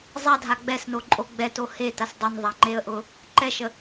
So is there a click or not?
yes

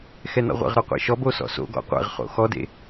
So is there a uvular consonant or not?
yes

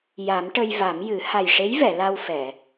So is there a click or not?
no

